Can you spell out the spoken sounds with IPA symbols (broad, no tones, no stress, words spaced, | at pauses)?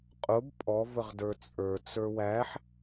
qʼʊb pʼɔ vəʁdə˞t͡sʼə˞ t͡sə˞wæħ